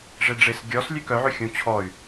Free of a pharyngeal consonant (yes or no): no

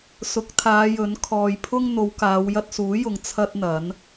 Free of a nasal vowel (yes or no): yes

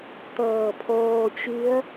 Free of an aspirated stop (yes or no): no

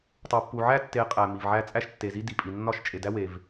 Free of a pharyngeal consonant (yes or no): no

